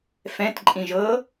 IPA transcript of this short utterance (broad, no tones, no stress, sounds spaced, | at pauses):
f ɛ̃ t ǃʼ ĩ ʒ ɤ